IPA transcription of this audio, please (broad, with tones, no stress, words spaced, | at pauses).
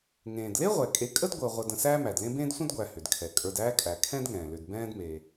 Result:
ŋẽː˩dle˥ʁʷɛ˩kʼe˨ kʼə˥dɡʷəː˨ ʁʷə˨də̃˨ sæː˦mæ˩dlẽ˦bẽː˥d sʷə̃˥dɡʷæ˨ hʏ˩dkʰɛ˩ kʼə˞˨dæː˦kʼæ˩ kʰɛ̃˥dŋɛ̃ː˩lʏ˨d bɛ̃ː˦dme˩